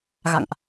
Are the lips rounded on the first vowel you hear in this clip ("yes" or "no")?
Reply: no